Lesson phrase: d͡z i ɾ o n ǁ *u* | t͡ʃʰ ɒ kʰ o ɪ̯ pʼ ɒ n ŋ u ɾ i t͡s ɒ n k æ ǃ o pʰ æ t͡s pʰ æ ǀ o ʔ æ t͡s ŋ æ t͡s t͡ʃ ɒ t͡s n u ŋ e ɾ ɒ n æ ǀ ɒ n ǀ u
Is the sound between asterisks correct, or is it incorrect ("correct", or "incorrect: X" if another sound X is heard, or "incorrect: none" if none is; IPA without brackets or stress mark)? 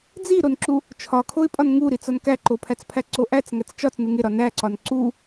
correct